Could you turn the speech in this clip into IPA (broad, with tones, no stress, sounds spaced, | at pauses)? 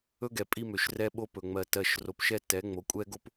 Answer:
ɵ˦ ɡ ɛ˨ pʼ i˦ m ø˨ ʃ r ɛ˦ ɓ o˦ p ɵ˨ ŋ͡m ɜ˨ t ɜ˨ ʃ r o˨ p ʃ ɛ˦ t ɛ˨˦ ŋ͡m o˨ kʷʼ ɛ˦ ɡ o˦ p